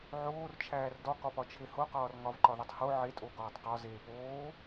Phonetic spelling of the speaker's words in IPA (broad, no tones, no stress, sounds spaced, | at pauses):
ʕ oː r t͡ʃʰ æː r d ɒ k ɒ p ɒ t͡ʃʰ e h o q ɒː r ŋ ɒ v ǃ ɒ ð o tˤ h o ʕ e tʼ o ɡ ɒː tˤ q ɒ z eː p oː